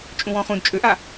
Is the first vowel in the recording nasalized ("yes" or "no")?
yes